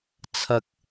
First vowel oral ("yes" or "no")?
yes